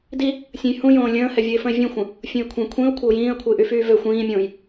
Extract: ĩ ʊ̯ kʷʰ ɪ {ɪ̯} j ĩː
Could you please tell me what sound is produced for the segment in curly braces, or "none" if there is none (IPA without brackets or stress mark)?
ʊ̯